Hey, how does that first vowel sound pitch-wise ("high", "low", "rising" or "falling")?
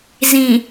low